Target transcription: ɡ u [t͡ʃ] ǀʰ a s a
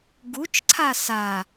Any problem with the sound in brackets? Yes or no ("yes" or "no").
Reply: no